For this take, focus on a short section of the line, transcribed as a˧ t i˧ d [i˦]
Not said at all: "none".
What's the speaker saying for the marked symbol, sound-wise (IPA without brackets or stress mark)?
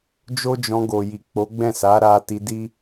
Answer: i˦